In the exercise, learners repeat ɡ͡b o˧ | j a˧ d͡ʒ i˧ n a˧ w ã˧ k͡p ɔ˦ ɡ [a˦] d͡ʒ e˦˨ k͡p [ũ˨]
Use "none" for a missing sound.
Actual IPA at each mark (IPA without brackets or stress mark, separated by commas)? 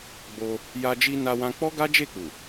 a˦, u˨